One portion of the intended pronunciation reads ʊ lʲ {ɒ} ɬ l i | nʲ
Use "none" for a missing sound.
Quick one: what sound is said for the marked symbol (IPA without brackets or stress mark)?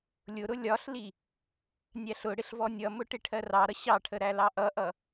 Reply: ɒ